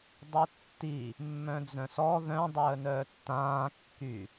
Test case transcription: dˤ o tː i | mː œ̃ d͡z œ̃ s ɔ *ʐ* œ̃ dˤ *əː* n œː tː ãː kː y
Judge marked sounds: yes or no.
no, yes

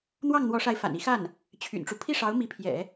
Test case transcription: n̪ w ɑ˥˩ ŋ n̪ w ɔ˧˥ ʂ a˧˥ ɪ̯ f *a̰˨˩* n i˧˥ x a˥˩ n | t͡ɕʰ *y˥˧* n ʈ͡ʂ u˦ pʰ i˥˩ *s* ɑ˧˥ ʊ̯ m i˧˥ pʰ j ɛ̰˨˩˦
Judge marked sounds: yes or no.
yes, no, no

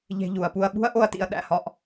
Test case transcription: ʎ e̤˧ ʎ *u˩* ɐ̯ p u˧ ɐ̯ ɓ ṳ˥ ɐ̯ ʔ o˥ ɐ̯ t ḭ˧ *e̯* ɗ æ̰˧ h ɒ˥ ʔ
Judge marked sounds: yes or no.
yes, no

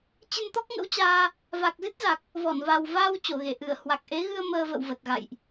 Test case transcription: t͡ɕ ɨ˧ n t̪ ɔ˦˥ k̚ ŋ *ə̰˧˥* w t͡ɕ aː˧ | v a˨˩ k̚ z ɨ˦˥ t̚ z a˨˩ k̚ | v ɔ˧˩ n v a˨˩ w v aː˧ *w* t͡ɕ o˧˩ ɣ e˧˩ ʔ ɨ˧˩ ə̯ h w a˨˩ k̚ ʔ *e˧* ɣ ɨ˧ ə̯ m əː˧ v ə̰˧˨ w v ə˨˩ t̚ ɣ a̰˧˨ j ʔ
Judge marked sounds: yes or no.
yes, yes, no

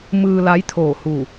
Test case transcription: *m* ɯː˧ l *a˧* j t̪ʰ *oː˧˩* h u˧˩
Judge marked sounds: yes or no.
yes, no, yes

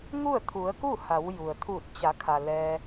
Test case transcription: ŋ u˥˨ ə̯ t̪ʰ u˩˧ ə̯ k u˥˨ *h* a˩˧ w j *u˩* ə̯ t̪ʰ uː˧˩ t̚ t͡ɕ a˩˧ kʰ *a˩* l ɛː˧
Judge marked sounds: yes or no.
yes, yes, yes

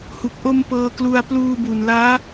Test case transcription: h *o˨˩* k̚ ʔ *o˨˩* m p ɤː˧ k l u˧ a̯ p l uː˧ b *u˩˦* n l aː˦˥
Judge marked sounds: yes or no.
no, no, no

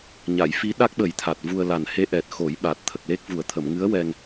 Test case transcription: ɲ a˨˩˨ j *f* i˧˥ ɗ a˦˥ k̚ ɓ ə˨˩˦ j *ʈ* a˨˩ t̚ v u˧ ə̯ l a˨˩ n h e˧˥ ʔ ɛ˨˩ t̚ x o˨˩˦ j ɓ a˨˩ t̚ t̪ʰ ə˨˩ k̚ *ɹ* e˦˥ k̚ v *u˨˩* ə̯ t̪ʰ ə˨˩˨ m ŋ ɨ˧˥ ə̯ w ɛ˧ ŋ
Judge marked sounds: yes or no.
yes, no, no, yes

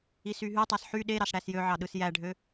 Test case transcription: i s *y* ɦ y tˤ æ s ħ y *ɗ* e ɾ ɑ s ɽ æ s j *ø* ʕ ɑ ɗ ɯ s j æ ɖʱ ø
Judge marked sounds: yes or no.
yes, yes, yes

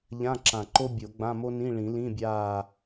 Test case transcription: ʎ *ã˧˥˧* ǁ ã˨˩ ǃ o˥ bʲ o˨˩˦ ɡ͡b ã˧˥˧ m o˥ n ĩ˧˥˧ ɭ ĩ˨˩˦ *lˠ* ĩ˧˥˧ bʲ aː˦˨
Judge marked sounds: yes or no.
yes, no

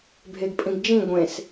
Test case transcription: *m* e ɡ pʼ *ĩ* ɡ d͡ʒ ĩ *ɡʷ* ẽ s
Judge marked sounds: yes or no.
no, yes, yes

